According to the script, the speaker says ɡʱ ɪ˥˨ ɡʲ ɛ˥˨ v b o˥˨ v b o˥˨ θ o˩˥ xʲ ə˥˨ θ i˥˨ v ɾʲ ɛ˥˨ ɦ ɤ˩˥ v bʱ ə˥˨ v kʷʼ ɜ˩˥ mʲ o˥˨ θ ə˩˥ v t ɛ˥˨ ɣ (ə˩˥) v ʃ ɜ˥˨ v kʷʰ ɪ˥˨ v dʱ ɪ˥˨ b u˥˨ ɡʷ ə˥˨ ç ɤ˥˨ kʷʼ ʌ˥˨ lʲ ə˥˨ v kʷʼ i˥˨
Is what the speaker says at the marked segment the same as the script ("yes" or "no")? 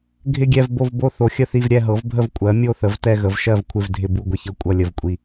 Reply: yes